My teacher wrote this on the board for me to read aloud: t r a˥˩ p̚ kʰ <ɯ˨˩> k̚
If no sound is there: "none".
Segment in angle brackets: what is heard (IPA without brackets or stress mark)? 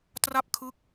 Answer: ɯ˦˥